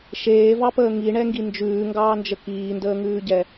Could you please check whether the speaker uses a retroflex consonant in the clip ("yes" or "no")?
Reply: yes